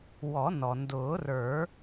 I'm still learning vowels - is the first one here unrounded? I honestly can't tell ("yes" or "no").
no